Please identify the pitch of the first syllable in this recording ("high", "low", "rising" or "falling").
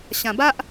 low